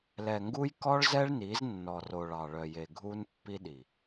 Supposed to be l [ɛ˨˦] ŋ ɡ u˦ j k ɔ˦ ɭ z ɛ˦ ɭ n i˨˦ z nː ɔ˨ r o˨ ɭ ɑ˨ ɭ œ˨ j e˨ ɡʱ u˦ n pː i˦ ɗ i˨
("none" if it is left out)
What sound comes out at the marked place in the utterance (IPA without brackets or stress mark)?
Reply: ɛ˨